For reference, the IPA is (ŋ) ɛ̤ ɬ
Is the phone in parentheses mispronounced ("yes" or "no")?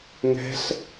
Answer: no